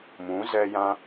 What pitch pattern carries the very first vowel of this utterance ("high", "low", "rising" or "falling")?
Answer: rising